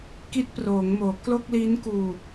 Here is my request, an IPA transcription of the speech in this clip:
k i˦˥ t̚ p r oː˩˦ ŋ m oː˩˦ k l o˥˩ k̚ l iː˦˥ n k uː˧

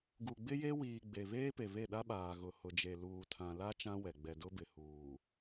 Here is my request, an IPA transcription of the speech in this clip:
ɡ u˨ ɡ͡b ɪ˦ j e˦ w iː˨ ɡ͡b e˨ β eː˦ p e˨ β e˦˨ ɗ a˦ ɓ aː˨ ɣ ʊ˨ h ʊ˨ d͡ʒ e˨ l uː˨ tʰ ã˨ l a˦ t͡ʃ ã˦ w ɛ˨ ɡ͡b ɛ˨ d ʊ˦ b ɪ˨ h uː˨

